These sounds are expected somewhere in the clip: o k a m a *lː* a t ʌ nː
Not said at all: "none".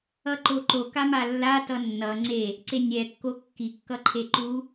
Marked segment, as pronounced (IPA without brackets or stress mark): lː